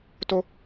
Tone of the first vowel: high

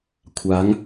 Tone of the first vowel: rising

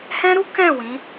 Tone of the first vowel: high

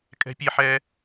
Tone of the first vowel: high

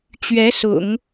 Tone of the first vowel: rising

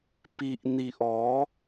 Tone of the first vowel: low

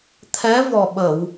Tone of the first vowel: rising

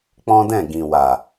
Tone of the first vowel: high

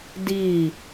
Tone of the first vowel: falling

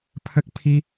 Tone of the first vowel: high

